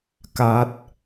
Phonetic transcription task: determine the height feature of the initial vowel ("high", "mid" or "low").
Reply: low